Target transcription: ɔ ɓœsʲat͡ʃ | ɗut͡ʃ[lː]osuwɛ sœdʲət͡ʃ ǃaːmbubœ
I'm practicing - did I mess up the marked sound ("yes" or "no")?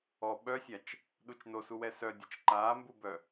yes